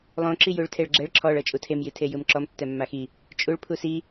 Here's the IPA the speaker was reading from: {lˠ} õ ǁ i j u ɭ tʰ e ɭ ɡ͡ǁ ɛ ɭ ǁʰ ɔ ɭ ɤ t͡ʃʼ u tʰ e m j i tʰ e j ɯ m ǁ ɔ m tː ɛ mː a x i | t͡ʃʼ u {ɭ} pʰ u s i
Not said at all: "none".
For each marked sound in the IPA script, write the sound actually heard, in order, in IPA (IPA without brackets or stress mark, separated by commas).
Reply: lˠ, ɭ